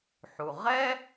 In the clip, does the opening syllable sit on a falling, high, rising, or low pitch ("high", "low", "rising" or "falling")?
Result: low